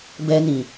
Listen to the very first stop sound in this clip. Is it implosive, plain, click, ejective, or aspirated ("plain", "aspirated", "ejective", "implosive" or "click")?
plain